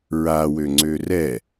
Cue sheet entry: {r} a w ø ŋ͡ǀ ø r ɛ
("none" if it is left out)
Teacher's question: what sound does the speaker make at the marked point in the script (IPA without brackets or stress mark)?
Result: ɹ